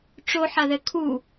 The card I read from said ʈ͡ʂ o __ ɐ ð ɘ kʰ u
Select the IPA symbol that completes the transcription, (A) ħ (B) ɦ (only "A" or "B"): A